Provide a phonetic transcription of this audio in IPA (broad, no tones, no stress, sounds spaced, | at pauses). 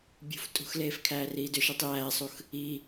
bʲ ṳ f tʼ ṳ x l eː f kʰ æː r iː d ʏ ʃ i tˤ j æː sˤ u x | i